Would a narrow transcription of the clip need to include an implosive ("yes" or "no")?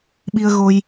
yes